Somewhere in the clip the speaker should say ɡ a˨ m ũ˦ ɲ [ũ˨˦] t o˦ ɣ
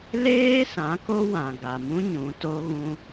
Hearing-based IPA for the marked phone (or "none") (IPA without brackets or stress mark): ũ˨˦